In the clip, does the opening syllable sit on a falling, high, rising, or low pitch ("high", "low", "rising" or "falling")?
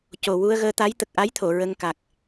low